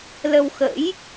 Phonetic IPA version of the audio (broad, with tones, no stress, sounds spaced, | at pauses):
l ə˧ w x ə̰˧˥ j